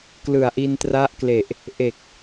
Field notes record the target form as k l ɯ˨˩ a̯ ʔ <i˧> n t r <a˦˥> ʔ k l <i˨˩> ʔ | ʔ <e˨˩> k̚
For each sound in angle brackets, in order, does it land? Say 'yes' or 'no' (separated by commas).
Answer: yes, yes, no, yes